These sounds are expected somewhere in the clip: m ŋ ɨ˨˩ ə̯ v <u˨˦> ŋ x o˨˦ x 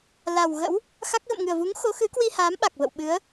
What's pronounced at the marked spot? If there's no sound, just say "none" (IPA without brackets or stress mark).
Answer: u˨˦